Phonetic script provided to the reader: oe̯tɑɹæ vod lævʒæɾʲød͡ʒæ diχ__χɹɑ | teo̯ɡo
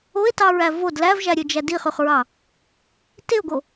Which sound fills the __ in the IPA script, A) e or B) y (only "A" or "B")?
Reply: B